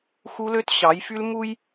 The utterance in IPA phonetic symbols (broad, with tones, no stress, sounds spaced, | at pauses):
x u˦ l ø˦ t ɕ ɑ˨˦ j f y˦ l m u˦ j